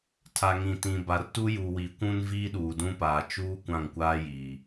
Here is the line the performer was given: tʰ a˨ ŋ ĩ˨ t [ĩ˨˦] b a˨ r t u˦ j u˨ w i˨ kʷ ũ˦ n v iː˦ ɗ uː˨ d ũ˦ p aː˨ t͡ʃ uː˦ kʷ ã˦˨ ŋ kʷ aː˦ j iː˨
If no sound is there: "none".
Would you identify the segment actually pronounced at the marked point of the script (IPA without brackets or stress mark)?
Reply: ĩ˨